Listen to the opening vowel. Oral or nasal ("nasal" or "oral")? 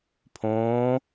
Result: nasal